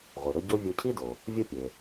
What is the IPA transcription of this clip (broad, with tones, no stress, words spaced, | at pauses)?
ʁʷi˩ɾɵ˧ ɟo˥ vʲo˧cʰi˥do˩ | vʲo˥pʲe˩